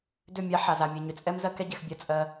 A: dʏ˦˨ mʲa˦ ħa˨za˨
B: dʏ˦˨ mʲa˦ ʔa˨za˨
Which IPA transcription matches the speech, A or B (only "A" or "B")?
A